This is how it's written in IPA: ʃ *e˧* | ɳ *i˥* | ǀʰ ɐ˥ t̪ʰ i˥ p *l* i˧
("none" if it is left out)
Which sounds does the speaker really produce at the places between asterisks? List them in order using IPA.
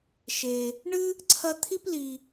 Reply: e˧, ɨ˥, l

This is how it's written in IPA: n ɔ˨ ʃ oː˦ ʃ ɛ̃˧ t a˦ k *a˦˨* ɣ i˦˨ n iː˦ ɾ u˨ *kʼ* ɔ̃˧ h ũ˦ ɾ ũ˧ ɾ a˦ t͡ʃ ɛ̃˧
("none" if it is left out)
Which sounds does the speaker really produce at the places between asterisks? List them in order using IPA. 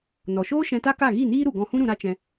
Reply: a˦˨, ɡ

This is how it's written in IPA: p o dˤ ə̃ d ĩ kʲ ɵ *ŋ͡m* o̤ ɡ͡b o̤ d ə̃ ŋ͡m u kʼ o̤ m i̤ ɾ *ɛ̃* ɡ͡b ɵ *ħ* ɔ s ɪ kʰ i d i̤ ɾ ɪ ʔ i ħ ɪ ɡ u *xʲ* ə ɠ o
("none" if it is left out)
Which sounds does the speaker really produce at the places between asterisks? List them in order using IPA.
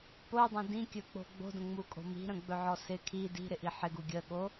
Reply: k͡p, ə̃, ʕ, ɡʲ

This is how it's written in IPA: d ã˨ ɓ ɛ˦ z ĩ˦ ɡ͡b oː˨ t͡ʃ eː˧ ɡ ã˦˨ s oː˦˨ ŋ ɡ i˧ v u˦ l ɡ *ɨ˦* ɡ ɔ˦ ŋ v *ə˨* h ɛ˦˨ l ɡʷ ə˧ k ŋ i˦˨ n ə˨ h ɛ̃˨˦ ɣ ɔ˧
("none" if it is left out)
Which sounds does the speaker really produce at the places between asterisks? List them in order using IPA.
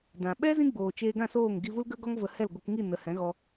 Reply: ə˦, ə˧

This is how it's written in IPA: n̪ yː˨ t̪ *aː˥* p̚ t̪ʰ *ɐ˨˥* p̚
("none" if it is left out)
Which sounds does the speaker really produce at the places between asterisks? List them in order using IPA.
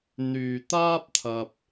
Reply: aː˥, ɐ˧

